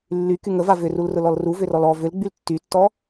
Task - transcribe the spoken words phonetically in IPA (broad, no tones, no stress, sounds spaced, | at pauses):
lː y k y ŋ ə v a v ʏ r u l r ʊ l ɔ l r u v ʏ r ɔ l ɔ v ʏ l ɡ͡b y l tː y tː ɔ